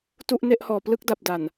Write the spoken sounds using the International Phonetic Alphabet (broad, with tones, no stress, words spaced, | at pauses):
tu˥˩ʔne˥˩ʔhɔː˨˩ plɯ˥˩k̚da˨˩p̚ da˨˩n